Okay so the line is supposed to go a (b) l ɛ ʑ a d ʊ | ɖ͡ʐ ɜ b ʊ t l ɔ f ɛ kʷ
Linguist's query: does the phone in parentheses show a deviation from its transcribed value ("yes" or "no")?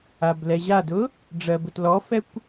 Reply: no